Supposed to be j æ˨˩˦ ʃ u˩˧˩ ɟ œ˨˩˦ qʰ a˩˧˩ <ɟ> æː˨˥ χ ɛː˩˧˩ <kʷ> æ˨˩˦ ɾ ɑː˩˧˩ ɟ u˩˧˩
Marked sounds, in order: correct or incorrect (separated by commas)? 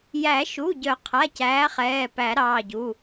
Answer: incorrect, incorrect